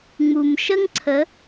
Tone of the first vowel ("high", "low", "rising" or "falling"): low